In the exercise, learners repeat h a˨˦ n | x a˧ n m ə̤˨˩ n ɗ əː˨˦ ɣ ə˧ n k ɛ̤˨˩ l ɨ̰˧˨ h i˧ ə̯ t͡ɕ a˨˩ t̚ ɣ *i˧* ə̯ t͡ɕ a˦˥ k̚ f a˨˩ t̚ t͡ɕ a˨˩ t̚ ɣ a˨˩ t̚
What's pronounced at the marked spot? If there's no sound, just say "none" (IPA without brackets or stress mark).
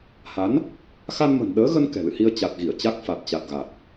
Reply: i˧˩